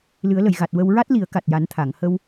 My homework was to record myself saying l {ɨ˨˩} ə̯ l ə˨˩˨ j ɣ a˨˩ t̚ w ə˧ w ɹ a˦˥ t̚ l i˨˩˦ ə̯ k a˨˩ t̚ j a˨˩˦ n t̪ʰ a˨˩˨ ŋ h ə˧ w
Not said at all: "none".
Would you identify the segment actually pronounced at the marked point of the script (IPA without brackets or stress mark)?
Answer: ɨ˨˩˦